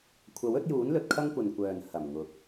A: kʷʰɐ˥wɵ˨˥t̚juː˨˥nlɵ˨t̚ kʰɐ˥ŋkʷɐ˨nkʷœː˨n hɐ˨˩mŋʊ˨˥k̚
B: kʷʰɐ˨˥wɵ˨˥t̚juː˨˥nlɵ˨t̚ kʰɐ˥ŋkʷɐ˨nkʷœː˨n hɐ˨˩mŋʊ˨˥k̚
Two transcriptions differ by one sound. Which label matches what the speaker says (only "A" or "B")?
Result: B